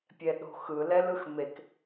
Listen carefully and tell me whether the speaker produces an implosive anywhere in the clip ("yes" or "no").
yes